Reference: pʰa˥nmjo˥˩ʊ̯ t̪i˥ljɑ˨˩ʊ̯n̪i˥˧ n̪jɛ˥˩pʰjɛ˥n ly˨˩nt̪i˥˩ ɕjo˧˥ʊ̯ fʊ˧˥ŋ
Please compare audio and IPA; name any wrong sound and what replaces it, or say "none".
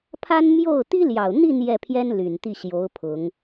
f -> pʰ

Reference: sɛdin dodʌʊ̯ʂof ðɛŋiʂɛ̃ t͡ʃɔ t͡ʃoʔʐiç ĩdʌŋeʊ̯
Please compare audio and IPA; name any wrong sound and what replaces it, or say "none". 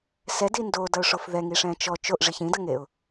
none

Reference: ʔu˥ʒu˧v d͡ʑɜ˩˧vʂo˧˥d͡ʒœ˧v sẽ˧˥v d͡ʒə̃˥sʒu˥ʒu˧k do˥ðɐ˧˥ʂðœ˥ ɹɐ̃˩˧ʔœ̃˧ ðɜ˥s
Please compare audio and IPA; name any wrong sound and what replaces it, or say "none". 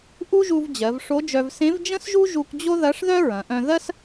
d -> d͡ʑ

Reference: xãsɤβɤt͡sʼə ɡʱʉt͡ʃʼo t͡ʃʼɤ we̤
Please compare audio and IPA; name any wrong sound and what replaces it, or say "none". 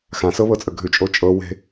none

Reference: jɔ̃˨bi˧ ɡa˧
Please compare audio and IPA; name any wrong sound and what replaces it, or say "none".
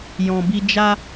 ɡ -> d͡ʒ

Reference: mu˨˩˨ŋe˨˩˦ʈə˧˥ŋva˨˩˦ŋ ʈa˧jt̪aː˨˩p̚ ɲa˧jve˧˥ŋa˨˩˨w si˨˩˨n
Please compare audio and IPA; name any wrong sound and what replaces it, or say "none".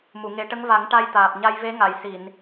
w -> j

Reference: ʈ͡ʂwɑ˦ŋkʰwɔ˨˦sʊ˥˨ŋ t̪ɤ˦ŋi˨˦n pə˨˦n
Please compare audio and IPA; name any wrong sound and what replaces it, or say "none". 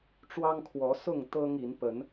none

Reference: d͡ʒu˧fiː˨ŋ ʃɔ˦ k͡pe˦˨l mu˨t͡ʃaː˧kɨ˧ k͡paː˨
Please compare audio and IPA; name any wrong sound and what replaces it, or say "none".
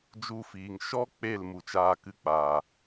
none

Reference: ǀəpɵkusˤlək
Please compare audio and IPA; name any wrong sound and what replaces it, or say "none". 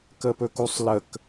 ǀ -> k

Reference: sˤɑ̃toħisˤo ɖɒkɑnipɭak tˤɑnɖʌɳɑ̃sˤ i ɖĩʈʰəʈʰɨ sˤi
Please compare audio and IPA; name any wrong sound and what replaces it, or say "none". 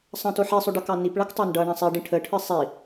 ɒ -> ʌ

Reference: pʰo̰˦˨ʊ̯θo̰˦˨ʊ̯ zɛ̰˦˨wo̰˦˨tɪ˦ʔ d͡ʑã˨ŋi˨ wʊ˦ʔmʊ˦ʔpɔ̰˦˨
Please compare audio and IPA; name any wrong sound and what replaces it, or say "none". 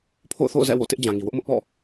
none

